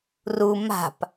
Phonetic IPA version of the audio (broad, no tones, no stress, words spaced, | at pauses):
ru ma̤p